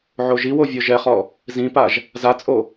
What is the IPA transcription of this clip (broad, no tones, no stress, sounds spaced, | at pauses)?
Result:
ʕ o ʒ i w o vʲ ɔ ʒ ɛ χ ɔ | z ĩ p a ʒ | z a t͡sʼ o